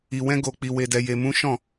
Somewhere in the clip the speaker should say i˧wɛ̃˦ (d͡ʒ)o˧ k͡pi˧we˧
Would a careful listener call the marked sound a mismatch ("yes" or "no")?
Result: yes